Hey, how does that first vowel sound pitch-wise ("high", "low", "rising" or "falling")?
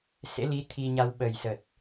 rising